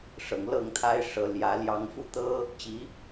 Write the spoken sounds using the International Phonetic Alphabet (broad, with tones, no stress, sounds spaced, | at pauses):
ʂ ɤ˨˩ ŋ l ɤ˥˨ ŋ t̪ʰ a˦ ɪ̯ ʂ ɤ˨˦ l j ä˨˦ l j ɑ˦ ŋ f u˦ t̪ ɤ˦ | t͡ɕ i˨˦